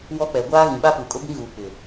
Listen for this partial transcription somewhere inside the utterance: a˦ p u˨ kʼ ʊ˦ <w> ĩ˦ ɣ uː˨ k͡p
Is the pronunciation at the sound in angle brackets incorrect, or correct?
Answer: incorrect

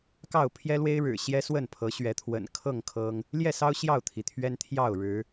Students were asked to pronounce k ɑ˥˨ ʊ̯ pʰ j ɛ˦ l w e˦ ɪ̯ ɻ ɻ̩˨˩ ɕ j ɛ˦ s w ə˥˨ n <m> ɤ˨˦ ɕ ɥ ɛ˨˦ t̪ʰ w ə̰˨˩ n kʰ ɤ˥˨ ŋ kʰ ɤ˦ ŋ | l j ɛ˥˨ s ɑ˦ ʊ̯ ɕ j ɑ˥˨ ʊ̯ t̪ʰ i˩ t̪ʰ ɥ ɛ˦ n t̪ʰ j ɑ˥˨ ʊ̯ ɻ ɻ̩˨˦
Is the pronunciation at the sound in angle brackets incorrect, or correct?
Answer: incorrect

